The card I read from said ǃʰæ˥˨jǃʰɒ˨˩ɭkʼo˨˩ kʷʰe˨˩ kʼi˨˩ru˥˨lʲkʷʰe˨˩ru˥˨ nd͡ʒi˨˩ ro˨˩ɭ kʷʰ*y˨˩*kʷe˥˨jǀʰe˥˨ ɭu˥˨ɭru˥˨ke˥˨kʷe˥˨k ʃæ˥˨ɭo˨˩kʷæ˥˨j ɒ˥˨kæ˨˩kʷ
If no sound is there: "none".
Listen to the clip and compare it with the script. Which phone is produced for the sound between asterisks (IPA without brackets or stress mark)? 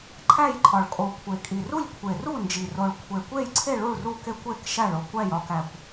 e˨˩